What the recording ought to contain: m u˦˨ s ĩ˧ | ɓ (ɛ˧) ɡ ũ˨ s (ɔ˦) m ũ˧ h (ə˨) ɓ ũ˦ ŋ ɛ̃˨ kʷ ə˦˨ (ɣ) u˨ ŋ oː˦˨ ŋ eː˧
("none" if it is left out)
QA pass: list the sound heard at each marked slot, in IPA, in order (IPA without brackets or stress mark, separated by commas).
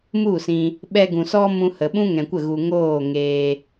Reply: ɛ˧, ɔ˦, ə˨, ɣ